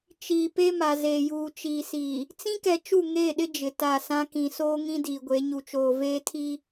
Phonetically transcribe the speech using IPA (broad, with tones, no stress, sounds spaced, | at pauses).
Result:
t͡ʃ iː˨ p e˦ m a˨ z eː˨ j uː˨ t͡ʃ iː˨ s iː˨ | t͡s ĩ˦ k ɛ˨ t͡ʃ u˦˨ ŋ eː˦˨ ɗ ɪ˦ d͡ʒ ɪ˨ t a˦˨ s ã˦ k ĩ˨ s oː˦ ŋ ĩ˦ d iː˨ ɡʷ e˨˦ ɲ u˨ t͡ʃ oː˨ v eː˦ tʰ i˦